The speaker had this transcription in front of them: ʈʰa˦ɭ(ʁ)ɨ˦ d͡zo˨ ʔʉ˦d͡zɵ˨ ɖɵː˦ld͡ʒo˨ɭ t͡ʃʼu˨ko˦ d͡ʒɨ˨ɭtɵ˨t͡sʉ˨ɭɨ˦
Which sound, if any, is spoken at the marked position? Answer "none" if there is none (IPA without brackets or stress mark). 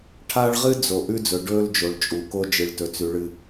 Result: ʁ